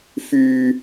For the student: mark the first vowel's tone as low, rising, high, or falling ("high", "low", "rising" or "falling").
low